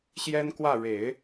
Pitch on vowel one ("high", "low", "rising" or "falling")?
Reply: high